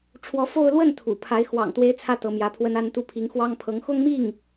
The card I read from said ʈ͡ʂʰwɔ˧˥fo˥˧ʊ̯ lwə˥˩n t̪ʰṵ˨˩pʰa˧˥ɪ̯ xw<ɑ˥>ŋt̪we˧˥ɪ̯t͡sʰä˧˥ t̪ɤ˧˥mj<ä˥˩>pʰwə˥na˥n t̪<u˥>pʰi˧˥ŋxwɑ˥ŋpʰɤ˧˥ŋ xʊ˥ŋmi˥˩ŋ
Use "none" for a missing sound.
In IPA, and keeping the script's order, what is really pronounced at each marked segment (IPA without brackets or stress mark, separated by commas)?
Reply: ɑ̰˨˩, ä˧˥, u˥˩